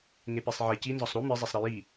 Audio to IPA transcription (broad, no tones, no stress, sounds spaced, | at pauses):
ŋ e p e sˤ ʕ e c i n z ɒ sˤ ɾ u m i zˤ e sˤ ɾ i j i